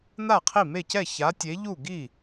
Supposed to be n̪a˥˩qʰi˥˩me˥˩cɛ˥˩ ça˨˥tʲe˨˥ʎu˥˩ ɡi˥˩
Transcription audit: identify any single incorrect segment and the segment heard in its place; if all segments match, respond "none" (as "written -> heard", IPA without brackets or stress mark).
none